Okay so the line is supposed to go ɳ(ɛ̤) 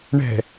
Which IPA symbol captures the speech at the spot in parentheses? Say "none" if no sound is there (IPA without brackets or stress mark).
ɛ̤